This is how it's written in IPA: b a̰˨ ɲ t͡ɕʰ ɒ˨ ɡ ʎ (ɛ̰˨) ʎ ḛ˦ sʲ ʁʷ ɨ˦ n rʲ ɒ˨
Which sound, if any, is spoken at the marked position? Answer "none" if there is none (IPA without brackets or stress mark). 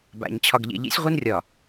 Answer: ḛ˨